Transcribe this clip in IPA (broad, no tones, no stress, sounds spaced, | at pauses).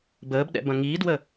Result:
b əː b ɗ ɛ̰ b ɐ̃ ŋ i d w ə